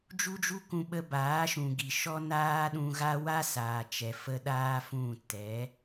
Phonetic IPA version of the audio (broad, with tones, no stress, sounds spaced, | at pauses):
d͡ʒ u˦ d͡ʒ u˦ k ũ˧ ɓ ə˧ b aː˨˦ ʃ ũ˨ ɡ i˨ ʃ ɔ˦ n aː˦ ɗ ũ˧ ɣ a˦ w a˦ s aː˨ t͡ʃ ɛ˨ f ə˧ ɗ aː˦ f ũ˦˨ t ɛ˨˦